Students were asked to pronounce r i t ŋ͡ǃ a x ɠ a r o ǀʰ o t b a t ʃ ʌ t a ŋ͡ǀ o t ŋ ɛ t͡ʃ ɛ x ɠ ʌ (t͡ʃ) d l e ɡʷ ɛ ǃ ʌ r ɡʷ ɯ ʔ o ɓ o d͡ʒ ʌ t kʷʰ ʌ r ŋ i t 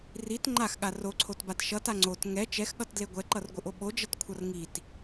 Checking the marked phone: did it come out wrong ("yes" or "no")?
yes